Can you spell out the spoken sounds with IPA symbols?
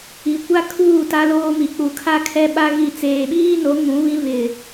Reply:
i˨ kʷa˦kʰuː˦˨ ta˦loː˦mi˨ k͡pu˨kʰa˦kʰɛ˦ ɓa˦ ɣi˨ t͡seː˨ɓiː˦no˨˦ ŋũ˨˦βĩ˦ βɪ˨

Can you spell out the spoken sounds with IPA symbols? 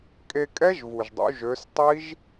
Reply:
kʼe˧kʼɛ˦˥ʒvu˩ʒdˤṵ˩˧ ʒø˩˧stˤi˦˥ʒ

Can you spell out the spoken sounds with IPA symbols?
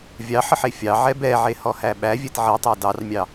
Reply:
vʲɑħəħ efʲɑʕɛ bɛʕe hɔhæɓævʲɛt ʕitˤɑ dɑrmʲɑ

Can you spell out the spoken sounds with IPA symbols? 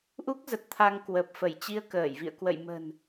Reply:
ʔu˦˥k̚zə˨˩t̚ t̪ʰa˧ŋ kwə˨˩p̚ fə˧˩jt͡ɕi˧ə̯kəː˧˩jvḭ˧˨ə̯ kwə̰˧˨jmə̤˨˩n

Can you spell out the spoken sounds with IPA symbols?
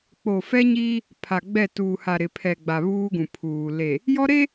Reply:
k͡po˨fɛ˦ɲiː˦ | pʰa˨ɡ͡bɛ˦˨ tuː˨ha˨ ɾɪ˨pʰɛ˨ɡ͡ba˨ βuː˦ɡũ˨pʰuː˨ le˨ | jɔ˦ɾe˦

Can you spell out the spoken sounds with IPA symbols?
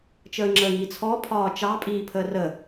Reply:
t͡ʃəːŋ͡ǁəːŋiːt͡sʰɔ pʰɒːt͡ʃɑ pʼiːpʰəːrə

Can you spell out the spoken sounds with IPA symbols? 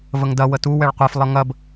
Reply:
vəŋdɐ wətu wɛɭqʷɛf lˠʌŋɐb

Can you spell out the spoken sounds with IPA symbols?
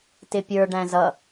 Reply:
tɪpʲə˞ ɖæ̃zʌ

